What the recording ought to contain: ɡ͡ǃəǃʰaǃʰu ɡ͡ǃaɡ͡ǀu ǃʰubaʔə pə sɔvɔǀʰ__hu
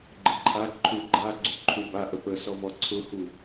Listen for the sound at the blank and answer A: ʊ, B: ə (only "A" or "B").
A